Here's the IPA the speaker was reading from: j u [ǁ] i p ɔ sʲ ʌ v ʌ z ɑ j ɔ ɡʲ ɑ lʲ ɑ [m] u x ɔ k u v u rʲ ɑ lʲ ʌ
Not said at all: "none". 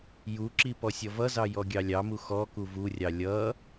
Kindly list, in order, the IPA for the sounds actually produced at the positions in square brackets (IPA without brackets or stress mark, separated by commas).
ǁ, m